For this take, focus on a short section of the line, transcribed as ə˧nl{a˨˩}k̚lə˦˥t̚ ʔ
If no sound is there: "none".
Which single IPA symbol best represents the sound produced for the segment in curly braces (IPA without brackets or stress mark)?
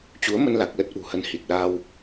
a˨˩